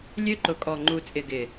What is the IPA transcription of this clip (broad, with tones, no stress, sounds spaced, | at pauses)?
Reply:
lʲ ø˦ ǃ ʊ˨˦ kʼ ɔ˨ ŋ͡ǃ u˨ t͡sʼ ɪ˨ ɡ ɪ˨